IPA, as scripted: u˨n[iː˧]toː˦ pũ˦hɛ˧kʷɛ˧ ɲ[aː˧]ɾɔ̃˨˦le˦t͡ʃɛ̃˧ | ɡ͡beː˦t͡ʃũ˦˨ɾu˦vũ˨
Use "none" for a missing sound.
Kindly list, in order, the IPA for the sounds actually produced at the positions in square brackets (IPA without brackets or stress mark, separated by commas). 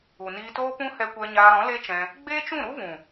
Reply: iː˧, aː˧